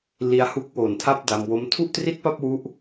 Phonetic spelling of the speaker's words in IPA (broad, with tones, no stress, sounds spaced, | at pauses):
l i˧ a̯ h u˦˥ k̚ w oː˨˩ n tʰ a˦˥ p̚ d a˧ m w o˦˥ m tʰ u˥˩ ʔ t r i˥˩ t̚ p a˥˩ p̚ w u˦˥ ʔ